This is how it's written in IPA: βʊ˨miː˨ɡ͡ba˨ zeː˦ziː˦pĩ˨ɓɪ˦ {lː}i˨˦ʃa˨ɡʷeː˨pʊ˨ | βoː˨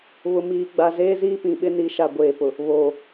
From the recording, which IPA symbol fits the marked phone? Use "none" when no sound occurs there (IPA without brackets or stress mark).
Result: n